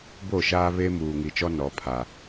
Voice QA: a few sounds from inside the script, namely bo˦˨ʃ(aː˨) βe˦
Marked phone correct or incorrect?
incorrect